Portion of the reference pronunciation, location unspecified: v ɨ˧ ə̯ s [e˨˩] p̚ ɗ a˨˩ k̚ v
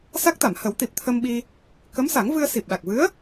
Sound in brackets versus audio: incorrect: i˨˩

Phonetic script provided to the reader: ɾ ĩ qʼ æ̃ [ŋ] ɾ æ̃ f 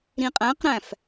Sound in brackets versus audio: incorrect: q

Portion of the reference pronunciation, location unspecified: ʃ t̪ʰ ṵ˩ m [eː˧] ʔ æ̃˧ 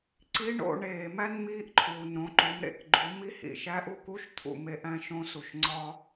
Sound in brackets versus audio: incorrect: e˧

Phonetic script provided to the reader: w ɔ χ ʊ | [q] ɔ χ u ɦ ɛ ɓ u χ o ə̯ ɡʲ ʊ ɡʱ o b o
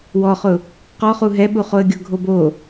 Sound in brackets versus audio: correct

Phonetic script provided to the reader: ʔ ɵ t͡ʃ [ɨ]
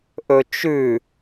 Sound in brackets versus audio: incorrect: ʉ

